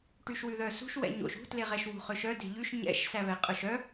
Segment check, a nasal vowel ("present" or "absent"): absent